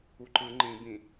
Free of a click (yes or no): no